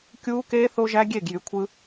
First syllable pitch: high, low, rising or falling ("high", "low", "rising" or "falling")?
high